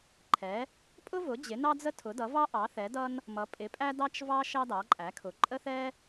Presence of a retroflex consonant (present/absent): absent